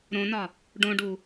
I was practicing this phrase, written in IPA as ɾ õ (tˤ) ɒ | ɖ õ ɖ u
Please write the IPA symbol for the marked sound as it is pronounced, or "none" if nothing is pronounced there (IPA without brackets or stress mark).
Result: n